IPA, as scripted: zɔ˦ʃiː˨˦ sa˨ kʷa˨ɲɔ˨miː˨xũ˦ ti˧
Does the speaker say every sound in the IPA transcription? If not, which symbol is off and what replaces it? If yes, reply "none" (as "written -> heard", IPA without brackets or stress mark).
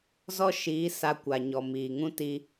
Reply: x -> ŋ